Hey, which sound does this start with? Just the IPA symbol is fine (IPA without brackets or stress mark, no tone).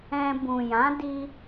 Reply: ɛ̃